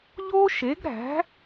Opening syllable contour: high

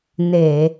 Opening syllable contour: low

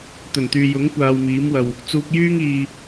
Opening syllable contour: low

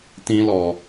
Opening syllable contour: high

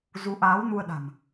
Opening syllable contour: rising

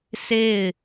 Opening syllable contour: falling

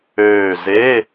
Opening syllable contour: falling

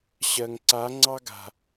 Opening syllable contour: low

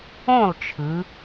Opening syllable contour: falling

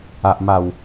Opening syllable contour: low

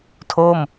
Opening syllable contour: falling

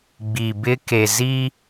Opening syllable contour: low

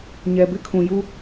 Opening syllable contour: low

